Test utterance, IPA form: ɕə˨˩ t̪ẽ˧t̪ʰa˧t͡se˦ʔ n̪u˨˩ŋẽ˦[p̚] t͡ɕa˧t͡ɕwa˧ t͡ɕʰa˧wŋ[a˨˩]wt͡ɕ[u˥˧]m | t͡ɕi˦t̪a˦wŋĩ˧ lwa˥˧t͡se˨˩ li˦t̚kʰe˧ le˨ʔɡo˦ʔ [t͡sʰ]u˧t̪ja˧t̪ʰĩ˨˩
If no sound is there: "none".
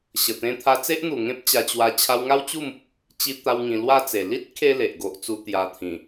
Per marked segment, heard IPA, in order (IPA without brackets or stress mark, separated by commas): p̚, a˦, u˥˧, t͡s